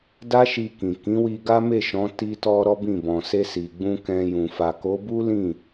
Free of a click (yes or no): yes